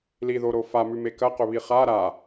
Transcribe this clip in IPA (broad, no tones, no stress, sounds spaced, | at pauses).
l i ð o ɾ o f a m ʉ m e k ɐ q ɵ β i χ a ɾ a